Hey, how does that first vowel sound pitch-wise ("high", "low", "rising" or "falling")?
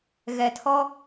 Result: low